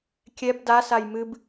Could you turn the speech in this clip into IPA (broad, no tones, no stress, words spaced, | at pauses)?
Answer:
kʲɛb da sajmɨb